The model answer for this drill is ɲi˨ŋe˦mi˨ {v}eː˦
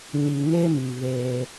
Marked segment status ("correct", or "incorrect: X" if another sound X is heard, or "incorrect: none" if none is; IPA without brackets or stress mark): incorrect: β